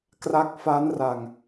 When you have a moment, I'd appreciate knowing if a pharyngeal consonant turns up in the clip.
no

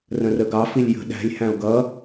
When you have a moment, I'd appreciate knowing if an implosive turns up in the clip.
yes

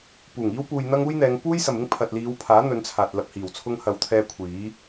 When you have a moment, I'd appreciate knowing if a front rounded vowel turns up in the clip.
no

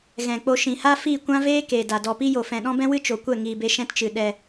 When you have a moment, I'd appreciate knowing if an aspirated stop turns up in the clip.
no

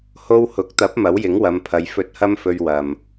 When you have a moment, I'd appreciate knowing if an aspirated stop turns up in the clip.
yes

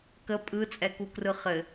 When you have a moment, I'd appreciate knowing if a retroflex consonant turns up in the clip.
no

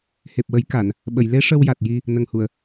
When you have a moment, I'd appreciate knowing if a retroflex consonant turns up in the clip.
yes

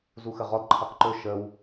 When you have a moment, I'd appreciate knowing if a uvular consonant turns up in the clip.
yes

